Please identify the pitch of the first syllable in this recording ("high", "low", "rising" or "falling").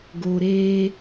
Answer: low